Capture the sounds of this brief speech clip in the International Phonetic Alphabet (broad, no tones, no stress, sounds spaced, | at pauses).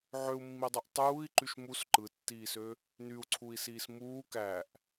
ʕ ø u̯ mː i dˤ y ʔ tˤ uː i̯ ǃ y ʃ m u s ǃ ɯ tː iː s ø | n y u̯ ǀʰ u i̯ s iː s m uː k æ ʔ